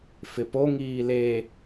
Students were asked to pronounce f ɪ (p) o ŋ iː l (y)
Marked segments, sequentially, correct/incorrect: correct, incorrect

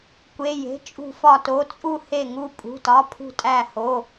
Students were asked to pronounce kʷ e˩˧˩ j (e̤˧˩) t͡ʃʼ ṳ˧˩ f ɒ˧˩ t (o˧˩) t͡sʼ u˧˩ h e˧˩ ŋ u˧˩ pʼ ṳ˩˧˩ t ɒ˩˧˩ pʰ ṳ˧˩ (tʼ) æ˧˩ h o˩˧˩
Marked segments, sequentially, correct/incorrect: incorrect, incorrect, correct

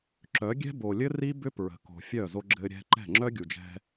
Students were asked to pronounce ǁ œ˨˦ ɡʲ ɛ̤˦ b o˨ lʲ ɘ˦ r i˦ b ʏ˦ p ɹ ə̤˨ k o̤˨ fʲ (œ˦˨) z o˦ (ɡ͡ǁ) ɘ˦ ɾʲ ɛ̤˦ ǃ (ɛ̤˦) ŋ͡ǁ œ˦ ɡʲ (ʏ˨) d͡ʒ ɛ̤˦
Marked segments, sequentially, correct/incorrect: correct, correct, incorrect, incorrect

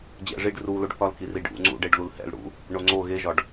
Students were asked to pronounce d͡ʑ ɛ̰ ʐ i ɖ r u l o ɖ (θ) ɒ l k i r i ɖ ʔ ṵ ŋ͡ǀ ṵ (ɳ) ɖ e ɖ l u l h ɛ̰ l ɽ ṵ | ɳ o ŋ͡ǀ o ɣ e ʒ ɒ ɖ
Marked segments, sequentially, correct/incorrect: correct, incorrect

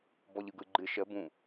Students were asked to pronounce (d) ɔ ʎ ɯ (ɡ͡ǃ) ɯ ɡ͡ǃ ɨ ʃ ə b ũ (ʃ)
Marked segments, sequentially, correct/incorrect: incorrect, incorrect, incorrect

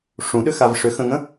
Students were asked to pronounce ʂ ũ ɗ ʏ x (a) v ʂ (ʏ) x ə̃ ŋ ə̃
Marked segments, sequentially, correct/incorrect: correct, correct

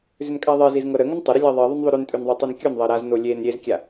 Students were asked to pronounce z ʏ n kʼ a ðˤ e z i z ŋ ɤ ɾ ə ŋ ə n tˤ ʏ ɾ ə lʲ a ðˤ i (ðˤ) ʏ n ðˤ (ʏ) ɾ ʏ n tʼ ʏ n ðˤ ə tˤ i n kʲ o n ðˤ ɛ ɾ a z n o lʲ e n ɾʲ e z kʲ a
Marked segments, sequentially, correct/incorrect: correct, correct

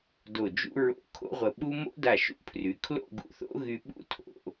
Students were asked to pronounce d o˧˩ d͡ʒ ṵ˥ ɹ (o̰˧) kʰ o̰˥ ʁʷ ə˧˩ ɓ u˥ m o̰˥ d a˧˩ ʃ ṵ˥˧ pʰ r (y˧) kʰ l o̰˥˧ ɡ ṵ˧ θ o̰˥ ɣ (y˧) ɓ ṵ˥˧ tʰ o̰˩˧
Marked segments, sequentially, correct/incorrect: correct, incorrect, correct

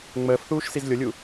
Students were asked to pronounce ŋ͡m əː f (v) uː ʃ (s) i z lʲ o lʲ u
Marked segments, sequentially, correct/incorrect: incorrect, correct

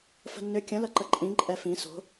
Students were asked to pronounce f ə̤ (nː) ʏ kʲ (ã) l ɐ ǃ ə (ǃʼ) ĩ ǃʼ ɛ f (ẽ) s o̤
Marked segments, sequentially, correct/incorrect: correct, incorrect, correct, incorrect

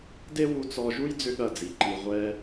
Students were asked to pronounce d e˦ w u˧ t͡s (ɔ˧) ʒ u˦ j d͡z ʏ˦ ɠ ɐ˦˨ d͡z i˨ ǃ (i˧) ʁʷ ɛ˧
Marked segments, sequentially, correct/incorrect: correct, correct

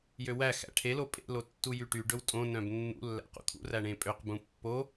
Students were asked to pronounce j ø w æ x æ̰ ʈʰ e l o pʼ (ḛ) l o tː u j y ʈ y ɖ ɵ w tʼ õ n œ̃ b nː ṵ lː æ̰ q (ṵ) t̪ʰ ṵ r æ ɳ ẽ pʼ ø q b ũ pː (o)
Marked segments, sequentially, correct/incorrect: correct, correct, correct

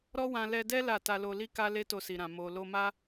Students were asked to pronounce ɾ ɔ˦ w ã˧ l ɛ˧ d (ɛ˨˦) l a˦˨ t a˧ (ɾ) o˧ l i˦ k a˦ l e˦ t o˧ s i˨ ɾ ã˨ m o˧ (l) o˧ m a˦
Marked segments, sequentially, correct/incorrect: incorrect, incorrect, correct

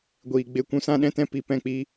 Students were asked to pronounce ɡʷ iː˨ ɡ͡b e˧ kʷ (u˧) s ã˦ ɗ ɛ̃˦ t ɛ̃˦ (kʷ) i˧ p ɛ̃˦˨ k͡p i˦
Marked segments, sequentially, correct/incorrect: incorrect, incorrect

